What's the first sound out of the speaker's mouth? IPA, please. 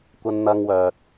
kʷ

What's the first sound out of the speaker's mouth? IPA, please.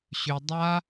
ɕ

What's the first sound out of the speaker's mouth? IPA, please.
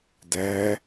d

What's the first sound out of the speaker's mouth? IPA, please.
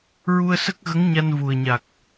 ɹ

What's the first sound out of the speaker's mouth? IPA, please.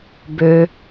b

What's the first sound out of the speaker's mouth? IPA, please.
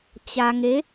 t͡ɕ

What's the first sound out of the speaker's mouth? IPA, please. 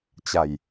t͡ɕ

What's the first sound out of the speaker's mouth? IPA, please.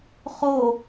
χ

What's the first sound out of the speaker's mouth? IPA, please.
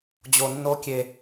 d͡ʑ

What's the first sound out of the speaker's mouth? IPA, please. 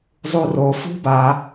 zˤ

